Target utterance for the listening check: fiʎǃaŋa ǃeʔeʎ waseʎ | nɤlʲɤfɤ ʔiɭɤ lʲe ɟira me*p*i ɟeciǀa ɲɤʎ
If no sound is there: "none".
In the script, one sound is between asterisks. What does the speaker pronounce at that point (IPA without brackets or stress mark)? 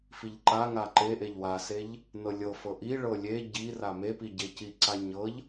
p